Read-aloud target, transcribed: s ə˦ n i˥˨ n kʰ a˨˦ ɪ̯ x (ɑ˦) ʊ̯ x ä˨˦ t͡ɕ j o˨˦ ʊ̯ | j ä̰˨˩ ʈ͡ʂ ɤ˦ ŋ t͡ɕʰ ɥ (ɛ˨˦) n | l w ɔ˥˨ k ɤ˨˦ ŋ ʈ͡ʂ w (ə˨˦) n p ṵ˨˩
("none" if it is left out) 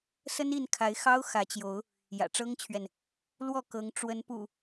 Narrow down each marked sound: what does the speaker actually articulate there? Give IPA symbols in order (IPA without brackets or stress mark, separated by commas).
ɑ˦, ɛ˨, ə˨˦